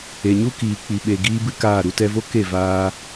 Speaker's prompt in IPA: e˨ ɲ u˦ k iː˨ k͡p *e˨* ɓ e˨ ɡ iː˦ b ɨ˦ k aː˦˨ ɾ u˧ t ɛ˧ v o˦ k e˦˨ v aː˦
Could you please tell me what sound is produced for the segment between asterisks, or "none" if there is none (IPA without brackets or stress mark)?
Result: i˨